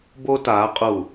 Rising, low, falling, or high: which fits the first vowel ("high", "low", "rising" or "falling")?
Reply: high